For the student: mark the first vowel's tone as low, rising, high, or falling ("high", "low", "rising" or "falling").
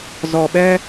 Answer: low